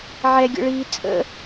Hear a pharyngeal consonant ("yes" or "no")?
yes